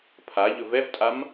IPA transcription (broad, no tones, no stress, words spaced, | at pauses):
pʰa ʎɵvɛvtʼam